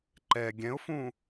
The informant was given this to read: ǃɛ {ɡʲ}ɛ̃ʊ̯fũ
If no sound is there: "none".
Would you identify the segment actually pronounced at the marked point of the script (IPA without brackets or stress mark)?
ɡʲ